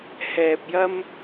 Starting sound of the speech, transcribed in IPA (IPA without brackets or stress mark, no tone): h